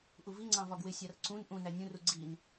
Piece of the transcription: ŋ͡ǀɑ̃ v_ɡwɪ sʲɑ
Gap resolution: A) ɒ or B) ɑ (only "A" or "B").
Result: A